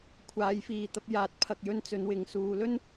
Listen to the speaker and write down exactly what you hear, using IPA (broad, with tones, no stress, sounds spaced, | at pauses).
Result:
kʷʰ aː˨˧ j f iː˨ t̪ ɐ˧ p̚ j aː˨˥ t̚ pʰ ɐ˨ k̚ j ɵ˧ n t͡s ɵ˨˧ n w ɪ˨ ŋ s uː˧ l ɵ˥ n